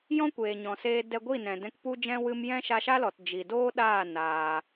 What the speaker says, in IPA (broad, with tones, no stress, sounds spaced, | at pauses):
j ɔ̃˦ kʷ eː˨ ɲ ɔ̃˨ s eː˧ d ɛ˧ ɡʷ i˦˨ n ɛ̃˨ d ɛ̃˧ k p u˦ d͡ʒ ɛ̃˦ w ɨ˧ m j ɛ̃˦ ʃ a˧ ʃ a˦ l ɔ˨ t d͡ʒ i˨ d oː˦ ɗ aː˦˨ n aː˧